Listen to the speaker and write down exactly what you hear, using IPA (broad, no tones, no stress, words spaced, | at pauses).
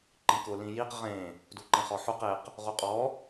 ǃĩkʊ lĩjiq ʁẽ | duǃẽχɔħuq eq | ʁuqʼɔ